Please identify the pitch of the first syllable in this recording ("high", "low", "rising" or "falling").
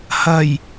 low